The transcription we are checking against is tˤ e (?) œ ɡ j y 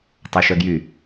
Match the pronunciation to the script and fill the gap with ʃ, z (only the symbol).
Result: ʃ